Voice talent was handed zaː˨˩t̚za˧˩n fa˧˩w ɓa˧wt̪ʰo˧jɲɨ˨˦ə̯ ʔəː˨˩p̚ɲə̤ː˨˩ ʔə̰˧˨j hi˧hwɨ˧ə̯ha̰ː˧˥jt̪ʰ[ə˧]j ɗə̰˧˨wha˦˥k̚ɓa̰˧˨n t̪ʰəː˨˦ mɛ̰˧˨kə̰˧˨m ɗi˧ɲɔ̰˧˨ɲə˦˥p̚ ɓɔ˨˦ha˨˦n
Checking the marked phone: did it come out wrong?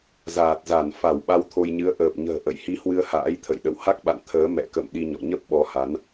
yes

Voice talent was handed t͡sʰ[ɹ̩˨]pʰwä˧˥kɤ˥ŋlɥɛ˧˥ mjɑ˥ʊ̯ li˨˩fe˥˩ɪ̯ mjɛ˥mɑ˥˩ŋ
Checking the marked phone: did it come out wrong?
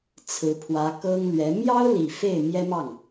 yes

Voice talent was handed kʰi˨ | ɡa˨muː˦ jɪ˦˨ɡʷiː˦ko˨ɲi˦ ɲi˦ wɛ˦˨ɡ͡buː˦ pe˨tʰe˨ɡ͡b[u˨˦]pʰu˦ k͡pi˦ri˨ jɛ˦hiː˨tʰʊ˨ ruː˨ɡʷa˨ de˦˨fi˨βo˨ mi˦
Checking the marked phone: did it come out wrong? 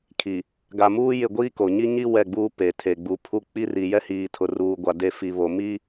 no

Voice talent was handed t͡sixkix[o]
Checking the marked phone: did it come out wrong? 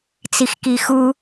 yes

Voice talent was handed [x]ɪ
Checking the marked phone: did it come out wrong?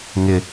yes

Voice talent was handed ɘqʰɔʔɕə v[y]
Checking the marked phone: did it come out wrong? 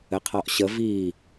yes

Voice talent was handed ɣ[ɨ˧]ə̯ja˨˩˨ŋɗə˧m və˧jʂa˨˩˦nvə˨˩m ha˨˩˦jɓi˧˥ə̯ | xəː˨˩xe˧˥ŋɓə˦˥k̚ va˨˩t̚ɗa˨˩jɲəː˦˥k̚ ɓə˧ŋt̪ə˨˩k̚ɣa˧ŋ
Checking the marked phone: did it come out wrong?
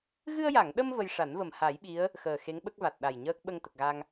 no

